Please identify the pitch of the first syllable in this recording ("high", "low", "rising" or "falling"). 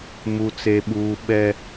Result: high